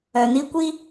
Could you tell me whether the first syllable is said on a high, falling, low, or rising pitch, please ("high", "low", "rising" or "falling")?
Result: low